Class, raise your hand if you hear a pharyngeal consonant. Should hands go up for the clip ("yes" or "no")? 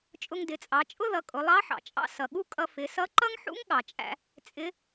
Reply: yes